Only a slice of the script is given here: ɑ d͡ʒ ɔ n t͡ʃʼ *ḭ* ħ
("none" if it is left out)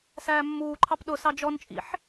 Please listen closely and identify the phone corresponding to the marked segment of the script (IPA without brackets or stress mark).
ḭ